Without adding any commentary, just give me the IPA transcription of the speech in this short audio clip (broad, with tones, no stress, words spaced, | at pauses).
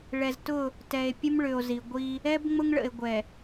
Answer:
ɭɛ˨ztʊ˦˨ | tɛ˨e̯ pʲə˦mɭʏ˨o̯zi˨ɡʷi˦ | ɛ˦b ŋ͡mʊ˦ŋɭə̰˨e̯ ɡʷɛ˨